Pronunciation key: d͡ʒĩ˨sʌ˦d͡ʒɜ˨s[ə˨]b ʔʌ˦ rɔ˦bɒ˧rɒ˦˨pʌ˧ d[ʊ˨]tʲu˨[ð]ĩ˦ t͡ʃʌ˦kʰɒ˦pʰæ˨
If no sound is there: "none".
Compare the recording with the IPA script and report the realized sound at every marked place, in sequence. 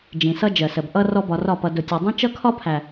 ə˨, ʊ˨, dˤ

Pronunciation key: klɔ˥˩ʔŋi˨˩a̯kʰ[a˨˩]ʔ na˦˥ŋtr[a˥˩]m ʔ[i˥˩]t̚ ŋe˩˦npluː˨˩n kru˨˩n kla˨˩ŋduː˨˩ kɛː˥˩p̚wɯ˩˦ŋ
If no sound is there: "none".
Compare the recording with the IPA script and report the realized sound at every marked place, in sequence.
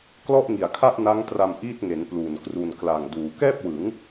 a˥˩, a˧, i˥˩

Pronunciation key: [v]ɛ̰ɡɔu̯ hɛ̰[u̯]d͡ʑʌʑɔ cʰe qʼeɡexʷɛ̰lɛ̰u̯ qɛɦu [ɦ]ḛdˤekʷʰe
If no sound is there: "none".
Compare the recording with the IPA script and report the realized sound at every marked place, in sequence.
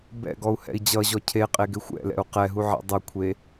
b, i̯, ʕ

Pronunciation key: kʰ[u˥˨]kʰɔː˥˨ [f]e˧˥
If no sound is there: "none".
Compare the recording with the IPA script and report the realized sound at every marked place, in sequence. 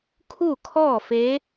u˥˨, f

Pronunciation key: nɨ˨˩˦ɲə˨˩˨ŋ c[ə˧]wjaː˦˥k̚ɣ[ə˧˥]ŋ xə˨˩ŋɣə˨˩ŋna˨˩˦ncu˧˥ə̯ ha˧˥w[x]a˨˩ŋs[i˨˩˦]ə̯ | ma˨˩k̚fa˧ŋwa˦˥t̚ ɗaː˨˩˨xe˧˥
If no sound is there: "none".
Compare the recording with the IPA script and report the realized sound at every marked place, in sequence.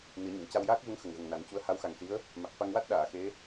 a˧, ə˧˥, x, i˧˥

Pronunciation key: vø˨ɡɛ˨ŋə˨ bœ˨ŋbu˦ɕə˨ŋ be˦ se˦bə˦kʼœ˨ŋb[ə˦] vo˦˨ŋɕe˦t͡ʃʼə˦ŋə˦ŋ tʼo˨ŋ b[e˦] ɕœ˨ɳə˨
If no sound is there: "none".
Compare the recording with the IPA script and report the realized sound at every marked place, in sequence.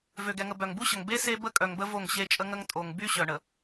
ə˦, y˦

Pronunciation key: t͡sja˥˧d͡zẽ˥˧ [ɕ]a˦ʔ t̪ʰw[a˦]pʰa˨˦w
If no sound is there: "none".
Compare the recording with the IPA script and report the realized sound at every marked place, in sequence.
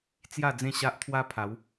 ɕ, a˦

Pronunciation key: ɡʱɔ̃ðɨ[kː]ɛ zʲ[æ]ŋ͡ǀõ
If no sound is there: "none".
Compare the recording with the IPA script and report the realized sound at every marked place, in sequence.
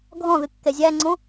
kː, æ

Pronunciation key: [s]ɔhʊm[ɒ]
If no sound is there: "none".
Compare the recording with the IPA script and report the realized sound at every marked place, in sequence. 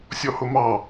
sʲ, ɑ

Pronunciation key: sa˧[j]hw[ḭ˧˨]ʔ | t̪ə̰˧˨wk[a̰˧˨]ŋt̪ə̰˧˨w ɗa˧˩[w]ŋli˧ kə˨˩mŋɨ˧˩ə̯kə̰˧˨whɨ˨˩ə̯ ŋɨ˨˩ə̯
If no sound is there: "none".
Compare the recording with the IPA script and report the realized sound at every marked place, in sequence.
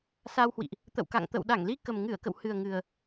w, ḭ˧˨, a̰˧˨, none

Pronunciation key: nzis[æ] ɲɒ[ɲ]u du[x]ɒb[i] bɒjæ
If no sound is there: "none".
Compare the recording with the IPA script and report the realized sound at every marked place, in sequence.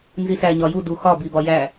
æ, j, x, i

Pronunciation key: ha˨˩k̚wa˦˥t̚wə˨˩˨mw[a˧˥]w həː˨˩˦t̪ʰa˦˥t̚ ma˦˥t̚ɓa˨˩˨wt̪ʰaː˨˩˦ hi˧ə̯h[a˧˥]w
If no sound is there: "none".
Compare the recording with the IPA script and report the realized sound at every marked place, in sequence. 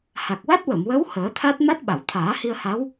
ə˧˥, a˧˥

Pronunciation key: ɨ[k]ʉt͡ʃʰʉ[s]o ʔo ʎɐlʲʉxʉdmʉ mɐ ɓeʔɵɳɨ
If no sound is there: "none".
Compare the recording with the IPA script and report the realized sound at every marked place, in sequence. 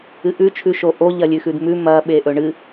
ʔ, ʃ

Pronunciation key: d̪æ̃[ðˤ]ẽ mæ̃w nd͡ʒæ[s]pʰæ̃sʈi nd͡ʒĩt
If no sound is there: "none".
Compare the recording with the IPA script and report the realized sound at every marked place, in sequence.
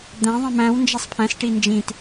ðˤ, sˤ

